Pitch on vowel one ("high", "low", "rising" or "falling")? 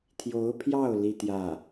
rising